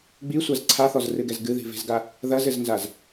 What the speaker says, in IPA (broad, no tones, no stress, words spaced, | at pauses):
ɡ͡bisʷaz ǀʰaθɔzrɨɡɛz ɡɨði̤ve̤zɡa | ðɐzɘznzaz